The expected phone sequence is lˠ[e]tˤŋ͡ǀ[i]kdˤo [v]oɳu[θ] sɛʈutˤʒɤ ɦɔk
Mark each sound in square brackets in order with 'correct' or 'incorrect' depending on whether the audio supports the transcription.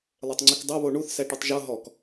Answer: correct, correct, incorrect, correct

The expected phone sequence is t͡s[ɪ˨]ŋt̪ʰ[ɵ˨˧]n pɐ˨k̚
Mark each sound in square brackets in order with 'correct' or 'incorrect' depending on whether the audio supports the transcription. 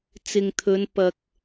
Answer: correct, correct

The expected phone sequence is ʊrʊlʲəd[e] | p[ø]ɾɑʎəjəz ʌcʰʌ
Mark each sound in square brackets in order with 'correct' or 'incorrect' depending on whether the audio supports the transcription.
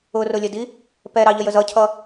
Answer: incorrect, incorrect

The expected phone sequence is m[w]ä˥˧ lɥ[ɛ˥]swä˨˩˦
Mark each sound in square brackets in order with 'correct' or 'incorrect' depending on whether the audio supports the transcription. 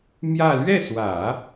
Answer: incorrect, incorrect

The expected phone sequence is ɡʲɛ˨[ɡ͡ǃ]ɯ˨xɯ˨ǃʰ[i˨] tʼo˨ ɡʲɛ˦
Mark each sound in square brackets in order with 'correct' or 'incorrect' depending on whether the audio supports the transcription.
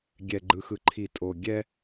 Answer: correct, correct

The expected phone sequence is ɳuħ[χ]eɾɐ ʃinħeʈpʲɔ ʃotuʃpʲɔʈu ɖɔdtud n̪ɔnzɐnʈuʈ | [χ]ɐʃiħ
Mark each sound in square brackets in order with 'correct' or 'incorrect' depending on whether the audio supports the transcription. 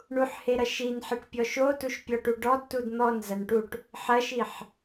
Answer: incorrect, incorrect

